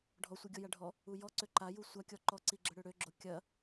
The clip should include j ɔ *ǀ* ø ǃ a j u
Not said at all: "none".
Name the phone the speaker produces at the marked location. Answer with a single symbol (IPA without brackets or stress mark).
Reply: ǀ